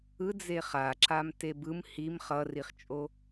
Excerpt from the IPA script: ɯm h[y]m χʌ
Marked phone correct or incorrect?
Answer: incorrect